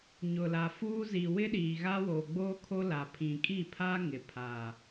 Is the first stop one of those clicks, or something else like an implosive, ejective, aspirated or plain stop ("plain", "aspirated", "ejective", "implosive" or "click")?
implosive